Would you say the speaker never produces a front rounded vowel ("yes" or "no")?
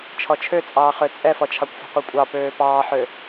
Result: no